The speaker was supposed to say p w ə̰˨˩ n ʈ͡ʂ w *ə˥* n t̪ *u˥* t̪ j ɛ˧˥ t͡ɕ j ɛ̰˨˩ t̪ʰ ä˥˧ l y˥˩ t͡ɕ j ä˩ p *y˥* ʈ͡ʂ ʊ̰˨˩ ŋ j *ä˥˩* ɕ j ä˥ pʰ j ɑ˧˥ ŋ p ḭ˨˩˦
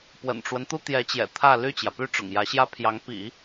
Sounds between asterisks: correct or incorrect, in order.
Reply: incorrect: ə˦, correct, correct, incorrect: ä˧˥

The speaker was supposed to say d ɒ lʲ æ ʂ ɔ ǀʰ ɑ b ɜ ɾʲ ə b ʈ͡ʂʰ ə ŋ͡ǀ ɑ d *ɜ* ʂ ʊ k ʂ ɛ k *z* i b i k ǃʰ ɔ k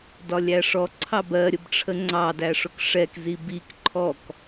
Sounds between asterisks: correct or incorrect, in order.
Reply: incorrect: æ, correct

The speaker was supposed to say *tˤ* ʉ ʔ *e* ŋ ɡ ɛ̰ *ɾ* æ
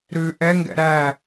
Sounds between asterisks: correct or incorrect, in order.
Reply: incorrect: ɾ, incorrect: ɛ, correct

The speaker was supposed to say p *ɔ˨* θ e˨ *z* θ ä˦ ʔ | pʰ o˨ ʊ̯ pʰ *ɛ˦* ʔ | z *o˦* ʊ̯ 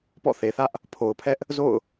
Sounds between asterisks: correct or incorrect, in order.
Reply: incorrect: ɔ̰˦˨, incorrect: none, correct, incorrect: o̰˦˨

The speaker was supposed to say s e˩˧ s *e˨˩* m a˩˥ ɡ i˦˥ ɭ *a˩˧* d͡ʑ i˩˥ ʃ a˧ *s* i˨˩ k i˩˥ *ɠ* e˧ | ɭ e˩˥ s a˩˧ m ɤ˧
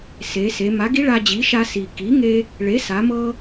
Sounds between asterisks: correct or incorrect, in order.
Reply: incorrect: e˩˧, incorrect: a˧, correct, incorrect: ŋ

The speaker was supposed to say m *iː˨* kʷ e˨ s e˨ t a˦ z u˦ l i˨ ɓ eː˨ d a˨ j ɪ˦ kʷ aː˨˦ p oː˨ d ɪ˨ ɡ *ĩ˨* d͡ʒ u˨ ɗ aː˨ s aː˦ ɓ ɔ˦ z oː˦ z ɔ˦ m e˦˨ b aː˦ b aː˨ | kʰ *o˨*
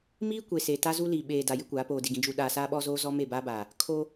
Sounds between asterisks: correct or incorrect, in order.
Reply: incorrect: iː˦, correct, incorrect: o˦

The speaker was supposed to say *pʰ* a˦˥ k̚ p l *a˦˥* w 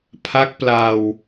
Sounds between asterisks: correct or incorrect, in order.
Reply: correct, incorrect: a˧

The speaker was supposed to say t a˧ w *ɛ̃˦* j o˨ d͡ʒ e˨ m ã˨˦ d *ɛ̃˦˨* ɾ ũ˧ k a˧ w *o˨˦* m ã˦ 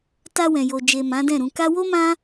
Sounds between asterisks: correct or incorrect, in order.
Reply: incorrect: ɛ̃˨, correct, incorrect: o˦

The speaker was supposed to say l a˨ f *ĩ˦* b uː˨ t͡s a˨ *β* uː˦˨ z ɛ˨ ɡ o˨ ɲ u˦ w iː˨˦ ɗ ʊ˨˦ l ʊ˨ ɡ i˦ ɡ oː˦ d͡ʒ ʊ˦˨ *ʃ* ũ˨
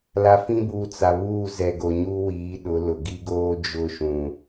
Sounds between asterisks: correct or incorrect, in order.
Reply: correct, correct, correct

